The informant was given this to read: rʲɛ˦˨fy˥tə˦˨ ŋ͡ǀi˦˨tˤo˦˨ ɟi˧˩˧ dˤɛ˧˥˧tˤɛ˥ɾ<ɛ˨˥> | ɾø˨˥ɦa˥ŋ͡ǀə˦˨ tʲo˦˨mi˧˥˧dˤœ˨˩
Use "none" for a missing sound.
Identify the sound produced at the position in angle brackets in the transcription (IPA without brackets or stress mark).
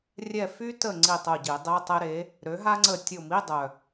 e˨˥